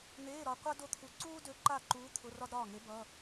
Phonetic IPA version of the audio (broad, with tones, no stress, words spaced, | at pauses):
n̪eː˧˥˧ɾɒ˧qʷa˥ do˥˨t̪ʰu˧˥ ǀuː˥dø˧˥ ǃa˥˨ǃuː˧˥ t̪ʰʊ˧˥˧rɒ˥dɾɒː˥˨ŋe˧˥ bʌ˧˥˧